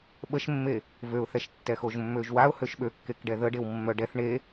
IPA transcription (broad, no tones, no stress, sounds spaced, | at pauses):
ɓ ə ʃ mː e | v ø ʊ̯ θ ɛ ʃ tː ɛ x o ʒ mː ø ʒ w a ʊ̯ h ø ʃ ɓ ø kː e k ɖ ɛ ð ə ɖ e w mː œ ɖ ɛ θ ɳ e